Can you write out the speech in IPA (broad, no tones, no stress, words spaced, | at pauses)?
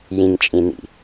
jĩŋt͡ʃʼĩnḭ